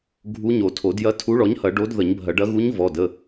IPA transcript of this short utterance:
ɡʱ u˧˥ ɲ o˨˩˦ tʰ o˨˩˦ d j ɐ˧˥ tʰ u˧˥ ɭ ɔ˩˥ ɲ h ɐ˨˩˦ ɖ o˧˥ d ð ə˨˩˦ ɲ bʱ ɐ˨˩˦ ɖ ɐ˧˥ ɣ u˧˥ ɲ v ɔ˩˧˩ d ə˩˧˩

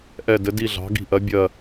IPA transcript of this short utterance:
ʔ ɛ˦˨ d ɘ˨˥ d i˦˨ ɮ ɑ̤˨˥ ɡ i̤˦˨ ʔ ɜ˨˥ bʲ ɜ˦˨

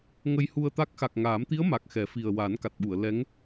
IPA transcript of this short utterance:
ŋ ə˧ j h u˧ ə̯ t̪ a˦˥ k̚ x a˨˩ k̚ ŋ aː˨˩˦ m t̪ i˧˥ ə̯ m a˨˩ k̚ x ɛ˨˩˦ f i˨˩ ə̯ w a˨˩˦ n k a˨˩ t̚ ɓ u˨˩˨ ə̯ l ɛ˧˥ ŋ

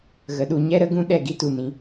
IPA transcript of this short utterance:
ɣ ə˨ ɗ u˨ ɲ ɛ˧ ɾ ə˧ ɡ ũ˧ ɗ ɛ˦˨ ɡ i˦ t u˦˨ n ĩ˦

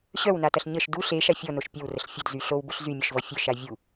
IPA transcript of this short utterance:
ɕ œ w n a t ɐ ɬ ɲ ə ʃ d u ɬ e ʃ a fʲ ɔ n o ʃ pʲ ɐ w r ə ɬ fʲ ə d z y ɬ o w b ʊ ɬ z y mʲ œ ʃ v ɔ fʲ œ ʃ a vʲ u

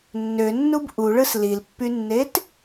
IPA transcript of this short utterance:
nː ø nː u b ʔ u ɭ ɯ s l i l pː y nː e t

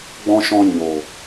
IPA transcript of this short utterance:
ɡ͡b ɔ̃˦ ʃ ɔ̃˦ ɲ o˨

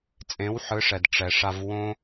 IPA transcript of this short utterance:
t͡sʼ ẽ˨˦ w ħ ɯ˨˦ ʂ ɛ˨ d ʈ͡ʂ ɛ˧ ʂ a˦ v w õ˦

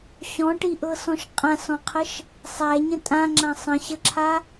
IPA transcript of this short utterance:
ɕ ɔ̃ ʈ i ʔ ɤ s ɔ̃ ʃ qʼ ã s ɔ̃ qʰ ə ʃ | sˤ æ ɲ ə̃ tʼ ã ŋ͡ǁ ã sˤ ə̃ ɕ ə ǁʰ a

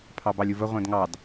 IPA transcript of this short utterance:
pʰ ɑ b ɑ lʲ u v ə ʁʷ ɛ̃ d ŋ ɑ d

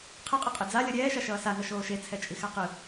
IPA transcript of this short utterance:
qʰ ɯ qʼ ʌ qʼ e d͡z a lʲ ʌ ɾʲ ɛː ʃ a ʃ ʌː s a ŋ ʌ ʃ oː ʃ e t͡sʰ ɛ t͡ʃʼ i x a q ɯ

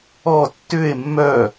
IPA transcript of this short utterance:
ɔ tː ʏ e̯ mː œ

